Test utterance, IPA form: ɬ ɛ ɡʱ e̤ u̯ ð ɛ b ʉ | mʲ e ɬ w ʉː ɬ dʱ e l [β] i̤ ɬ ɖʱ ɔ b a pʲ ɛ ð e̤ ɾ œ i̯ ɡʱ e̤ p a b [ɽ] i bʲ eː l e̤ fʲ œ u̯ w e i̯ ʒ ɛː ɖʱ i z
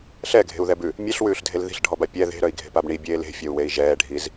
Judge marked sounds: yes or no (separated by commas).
no, no